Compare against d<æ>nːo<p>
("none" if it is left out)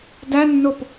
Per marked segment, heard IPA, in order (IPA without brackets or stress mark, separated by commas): æ, p